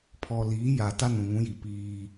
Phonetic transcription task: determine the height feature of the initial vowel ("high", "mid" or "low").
mid